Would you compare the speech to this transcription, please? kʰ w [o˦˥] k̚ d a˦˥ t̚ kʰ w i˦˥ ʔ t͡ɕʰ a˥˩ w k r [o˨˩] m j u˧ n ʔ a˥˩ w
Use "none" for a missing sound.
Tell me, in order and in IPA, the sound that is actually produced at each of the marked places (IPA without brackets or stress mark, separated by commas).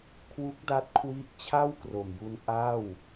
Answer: u˦˥, o˨˩